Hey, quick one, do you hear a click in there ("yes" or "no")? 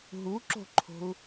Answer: yes